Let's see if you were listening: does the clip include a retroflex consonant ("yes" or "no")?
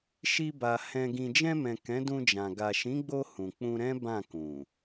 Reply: no